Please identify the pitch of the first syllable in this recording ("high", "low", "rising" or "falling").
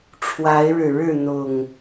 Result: rising